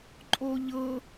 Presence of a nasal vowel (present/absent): absent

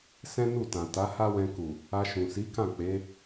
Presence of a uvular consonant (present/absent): absent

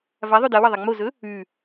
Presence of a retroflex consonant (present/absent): absent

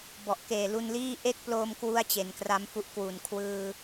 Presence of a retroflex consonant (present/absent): absent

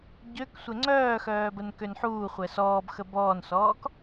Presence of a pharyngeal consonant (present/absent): present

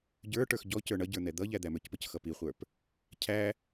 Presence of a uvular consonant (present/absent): present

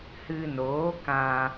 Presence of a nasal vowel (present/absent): present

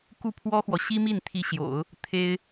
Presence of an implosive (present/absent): absent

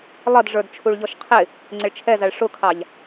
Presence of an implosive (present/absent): absent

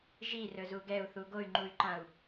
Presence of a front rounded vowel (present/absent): present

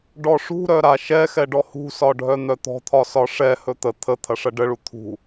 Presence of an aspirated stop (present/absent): present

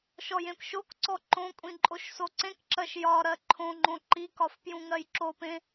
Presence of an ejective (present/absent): present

